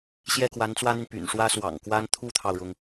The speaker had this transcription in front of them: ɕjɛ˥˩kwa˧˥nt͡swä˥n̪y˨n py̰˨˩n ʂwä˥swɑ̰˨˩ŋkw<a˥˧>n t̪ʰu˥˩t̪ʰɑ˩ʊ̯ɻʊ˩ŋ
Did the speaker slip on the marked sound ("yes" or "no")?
yes